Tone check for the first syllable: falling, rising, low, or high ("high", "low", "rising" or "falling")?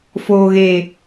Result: low